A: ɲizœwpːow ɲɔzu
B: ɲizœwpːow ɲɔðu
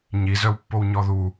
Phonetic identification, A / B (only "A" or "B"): B